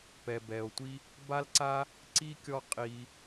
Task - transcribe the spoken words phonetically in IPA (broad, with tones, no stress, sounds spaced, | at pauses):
p ɛ˨ b ɛ˨ o̯ tʷ i˥ | b a˦ l ǀ a˦ | ǀ i˥ kʲ ɔ˦ qʼ i˨